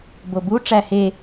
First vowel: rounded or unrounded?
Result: rounded